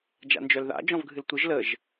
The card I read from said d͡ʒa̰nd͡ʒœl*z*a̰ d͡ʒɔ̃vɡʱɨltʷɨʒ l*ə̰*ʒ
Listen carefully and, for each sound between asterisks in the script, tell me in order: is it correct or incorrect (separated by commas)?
incorrect, incorrect